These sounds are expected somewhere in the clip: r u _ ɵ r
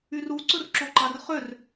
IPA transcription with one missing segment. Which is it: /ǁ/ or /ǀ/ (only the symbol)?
ǀ